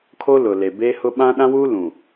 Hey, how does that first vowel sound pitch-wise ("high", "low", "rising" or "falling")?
high